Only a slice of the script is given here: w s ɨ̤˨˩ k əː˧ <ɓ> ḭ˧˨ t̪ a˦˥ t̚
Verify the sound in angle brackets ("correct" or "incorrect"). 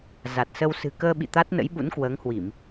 correct